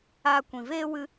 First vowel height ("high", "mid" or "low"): low